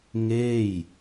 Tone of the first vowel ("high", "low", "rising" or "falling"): falling